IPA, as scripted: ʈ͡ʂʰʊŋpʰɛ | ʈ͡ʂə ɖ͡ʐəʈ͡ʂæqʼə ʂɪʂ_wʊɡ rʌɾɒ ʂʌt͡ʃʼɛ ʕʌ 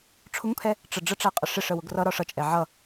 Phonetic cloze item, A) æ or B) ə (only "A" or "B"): B